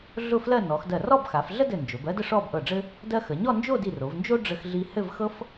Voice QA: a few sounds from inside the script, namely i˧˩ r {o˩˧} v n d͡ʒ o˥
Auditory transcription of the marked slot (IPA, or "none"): o˩˧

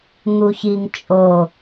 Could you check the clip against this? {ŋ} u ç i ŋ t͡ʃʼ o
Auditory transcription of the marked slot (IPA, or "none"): ŋ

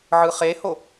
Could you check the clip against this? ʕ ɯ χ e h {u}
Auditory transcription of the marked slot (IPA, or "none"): o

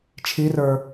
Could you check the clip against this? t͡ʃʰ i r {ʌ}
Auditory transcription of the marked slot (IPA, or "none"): ə˞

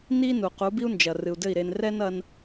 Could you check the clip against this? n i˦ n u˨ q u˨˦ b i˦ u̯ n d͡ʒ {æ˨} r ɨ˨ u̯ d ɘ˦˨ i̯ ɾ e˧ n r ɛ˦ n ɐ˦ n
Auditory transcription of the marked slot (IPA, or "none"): ɐ˨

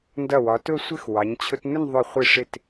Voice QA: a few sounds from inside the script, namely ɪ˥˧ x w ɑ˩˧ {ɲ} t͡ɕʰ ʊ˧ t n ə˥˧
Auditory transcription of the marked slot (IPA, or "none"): ɲ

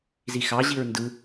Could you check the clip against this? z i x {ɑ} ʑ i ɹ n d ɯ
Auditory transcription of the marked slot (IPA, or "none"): ɑ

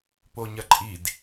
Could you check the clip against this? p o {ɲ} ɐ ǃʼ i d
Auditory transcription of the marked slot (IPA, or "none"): ɲ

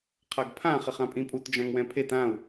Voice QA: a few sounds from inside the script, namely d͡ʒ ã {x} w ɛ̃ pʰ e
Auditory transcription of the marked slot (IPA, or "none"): ŋ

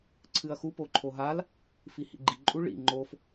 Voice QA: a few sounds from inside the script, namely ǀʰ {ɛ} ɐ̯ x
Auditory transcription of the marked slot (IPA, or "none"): ɨ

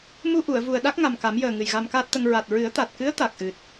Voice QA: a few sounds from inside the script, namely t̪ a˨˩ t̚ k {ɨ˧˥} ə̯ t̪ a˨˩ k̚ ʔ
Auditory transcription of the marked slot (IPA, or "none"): ɨ˧˥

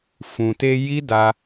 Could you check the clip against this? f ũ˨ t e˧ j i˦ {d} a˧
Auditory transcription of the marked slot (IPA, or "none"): d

